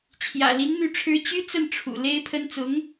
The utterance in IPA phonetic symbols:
t͡ɕʰjä̰˨˩li˧˥n n̪y˥˩ʈ͡ʂʰɻ̩˥ t͡ɕy˥t͡sə˥˩n ʈ͡ʂʰṵ˨˩ le˥ɪ̯pʰə˥n t͡sʊ˧˥ŋ

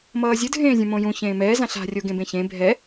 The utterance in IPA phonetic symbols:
mʌːzʲɯ dʱẽːzʲũmõjũ çẽːmɛː zãɬa̤ rʲoɡẽbẽçẽ bʱɛ

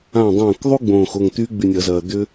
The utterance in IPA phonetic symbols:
ã˧˩dˤɐ̃ː˧˩kðˤu˦˥ ɡ͡bõː˧˩x o˧˩ŋt̪y˦˥ ɡ͡by˧˩nʲɐ˧˩˧zɐː˩ d̪ʏ˦˥

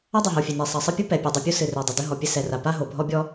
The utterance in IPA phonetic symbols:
ɐ˥dˤɘ˩ɦo˩ fʲe˩ne˩ sˤɐ˩sˤɘ˥pʲu˥ pɛ˩pʲe˩dˤɨ˩ pʲu˥sɨ˩re˩ dˤi˩dɘ˥ɦɔ˩pʲɘ˥ sɛ˩ra˩ pa˥ɦo˩bʱɔ˥bʲɔ˥

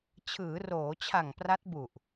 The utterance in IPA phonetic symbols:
t͡ɕʰɯː˩˦roː˩˦t͡ɕʰa˨˩ŋ pra˦˥t̚bu˨˩ʔ

